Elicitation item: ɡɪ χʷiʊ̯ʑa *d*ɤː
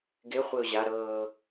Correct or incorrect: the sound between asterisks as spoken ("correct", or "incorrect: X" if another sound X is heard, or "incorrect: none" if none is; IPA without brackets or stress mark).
incorrect: ɾ